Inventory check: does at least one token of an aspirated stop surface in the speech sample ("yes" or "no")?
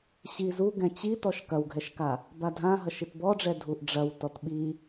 no